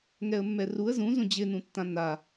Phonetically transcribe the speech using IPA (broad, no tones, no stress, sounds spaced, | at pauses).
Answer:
ŋ ɛ ə̯ mː ɛ r u ə̯ z ũ z ũ d͡ʑ ɪ n ũ tː ã n a